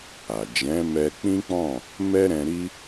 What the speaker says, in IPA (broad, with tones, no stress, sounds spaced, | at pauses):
a˨ d͡ʒ ɛ̃˨˦ m ɛ˧ k͡p ĩ˦ k͡p ɔ̃˦˨ | m ɛ˦ ɾ ɛ̃˧ ɾ i˦